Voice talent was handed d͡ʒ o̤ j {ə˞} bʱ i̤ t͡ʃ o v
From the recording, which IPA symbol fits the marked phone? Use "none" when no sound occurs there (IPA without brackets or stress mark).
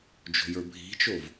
ə˞